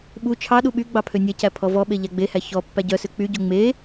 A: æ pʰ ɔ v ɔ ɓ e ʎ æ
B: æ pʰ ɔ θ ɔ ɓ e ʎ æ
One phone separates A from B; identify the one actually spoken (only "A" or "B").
A